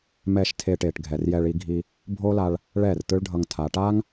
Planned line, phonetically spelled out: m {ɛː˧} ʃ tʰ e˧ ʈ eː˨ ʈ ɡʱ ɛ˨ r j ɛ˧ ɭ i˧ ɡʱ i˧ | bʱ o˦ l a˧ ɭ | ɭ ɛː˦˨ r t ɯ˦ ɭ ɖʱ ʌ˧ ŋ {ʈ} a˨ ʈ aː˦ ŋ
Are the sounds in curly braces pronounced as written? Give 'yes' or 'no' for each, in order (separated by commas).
yes, no